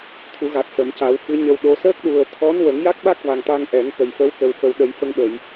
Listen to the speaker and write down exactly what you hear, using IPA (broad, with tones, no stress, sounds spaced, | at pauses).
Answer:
t̪ʰ u˨˩˦ ɣ a˨˩ t̚ s ə˨˩˨ m c a˨˩˦ w f ɨ˧˥ ɲ ə˧ w ɗ o˧˥ s əː˦˥ k̚ ɗ u˨˩ ə̯ t̪ʰ ɔ˧˥ n w ə˨˩˦ ŋ j a˦˥ k̚ ɓ a˦˥ k̚ v a˨˩ ŋ t̪ a˧ ŋ ʔ ɛ˨˩˦ ŋ k ə˨˩ j f ə˧˥ w k ə˨˩ w f ə˨˩ w ɗ ə˨˩˦ j f ə˧ ŋ ɓ ə˨˩˨ j